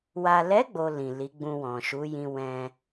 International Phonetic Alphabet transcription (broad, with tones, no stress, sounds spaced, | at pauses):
w a˨ l ɛ˨˦ ɡ͡b o˧ l ĩ˨ l i˨˦ ɡ͡b ũ˧ w ɔ̃˨ ʃ u˨˦ j ĩ˧ w ɛ̃˧